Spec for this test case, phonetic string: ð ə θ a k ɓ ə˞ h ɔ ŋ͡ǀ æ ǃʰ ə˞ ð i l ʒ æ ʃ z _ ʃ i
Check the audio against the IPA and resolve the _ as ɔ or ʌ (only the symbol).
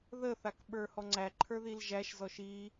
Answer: ɔ